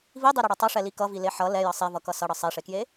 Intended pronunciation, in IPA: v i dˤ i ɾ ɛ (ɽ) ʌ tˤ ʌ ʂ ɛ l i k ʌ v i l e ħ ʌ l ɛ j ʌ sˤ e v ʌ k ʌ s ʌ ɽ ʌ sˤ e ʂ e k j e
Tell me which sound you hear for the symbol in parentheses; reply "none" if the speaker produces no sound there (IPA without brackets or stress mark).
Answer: ɽ